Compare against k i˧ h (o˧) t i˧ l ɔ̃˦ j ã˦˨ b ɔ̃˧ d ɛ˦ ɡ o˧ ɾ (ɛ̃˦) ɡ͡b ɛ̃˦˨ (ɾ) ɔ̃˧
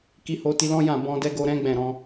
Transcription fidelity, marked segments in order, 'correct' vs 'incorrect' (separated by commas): correct, correct, correct